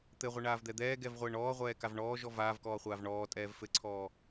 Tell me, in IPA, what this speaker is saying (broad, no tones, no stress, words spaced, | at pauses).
t̪ɘʁʷɘɳaːvd̪ɛ d̪ɛːɡɛvʁʷɘːɳ ɔːʁʷɛːkav ɳɔːʒɔ vaːvkɔːχʷaːv ɳɔːtʼɛːv fɘǀʰɔː